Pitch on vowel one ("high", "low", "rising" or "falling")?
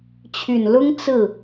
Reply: low